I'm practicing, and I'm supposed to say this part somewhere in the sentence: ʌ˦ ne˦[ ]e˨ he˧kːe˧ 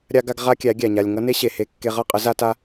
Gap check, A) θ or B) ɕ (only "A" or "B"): B